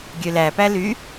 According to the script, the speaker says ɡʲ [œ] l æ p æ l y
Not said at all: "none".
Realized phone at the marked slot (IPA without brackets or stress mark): ø